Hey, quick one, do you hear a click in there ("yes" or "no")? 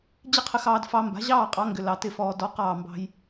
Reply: no